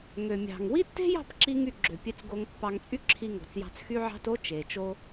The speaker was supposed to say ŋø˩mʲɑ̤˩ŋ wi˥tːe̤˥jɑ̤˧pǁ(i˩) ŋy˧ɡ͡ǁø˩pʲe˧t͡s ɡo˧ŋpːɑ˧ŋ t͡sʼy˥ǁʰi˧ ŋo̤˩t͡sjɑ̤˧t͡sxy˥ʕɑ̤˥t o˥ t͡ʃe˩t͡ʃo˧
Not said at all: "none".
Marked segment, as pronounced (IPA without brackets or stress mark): i˧